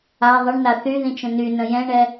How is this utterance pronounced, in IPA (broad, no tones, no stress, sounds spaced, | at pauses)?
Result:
a ðˤ ə ɳ n a θ y ð ĩ t͡ʃ ə̃ n y n ə̃ j ɛ̃ ɳ ɛ